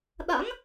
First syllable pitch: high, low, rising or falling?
rising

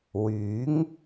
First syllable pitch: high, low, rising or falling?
rising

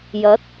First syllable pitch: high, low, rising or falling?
rising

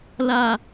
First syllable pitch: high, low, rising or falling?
high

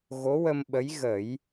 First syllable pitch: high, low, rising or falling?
rising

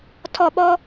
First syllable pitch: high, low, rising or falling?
falling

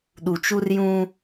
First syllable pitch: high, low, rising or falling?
low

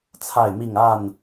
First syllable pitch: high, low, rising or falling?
falling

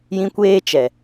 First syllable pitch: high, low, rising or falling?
high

